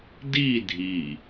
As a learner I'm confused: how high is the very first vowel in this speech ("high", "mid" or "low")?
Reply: high